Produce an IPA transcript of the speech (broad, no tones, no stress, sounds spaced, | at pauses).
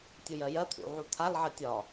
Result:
tʲ u j ɜ j ɜ t̪ʰ ṵ ʕ u t̪ʰ a l ʕ ɜ tʲ ɒ